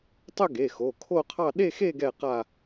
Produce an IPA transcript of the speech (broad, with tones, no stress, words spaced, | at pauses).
tˤɵ˥˧ɡe˩˧˩xo˩˧˩ kʰo˥˧qʰɑ˥˧ ɗe˥˧xe˥˧ ɡɛ˥˧ qa˥˧